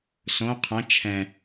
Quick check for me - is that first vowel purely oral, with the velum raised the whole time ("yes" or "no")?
no